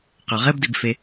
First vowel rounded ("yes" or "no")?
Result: yes